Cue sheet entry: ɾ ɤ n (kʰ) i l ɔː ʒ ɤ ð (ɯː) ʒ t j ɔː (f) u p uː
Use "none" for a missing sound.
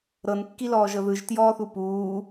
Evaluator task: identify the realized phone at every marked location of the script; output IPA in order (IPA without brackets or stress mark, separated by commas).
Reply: kː, ɯ, θ